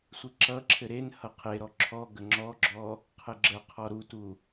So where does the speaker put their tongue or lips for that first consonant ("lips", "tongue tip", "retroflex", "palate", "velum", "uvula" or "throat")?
tongue tip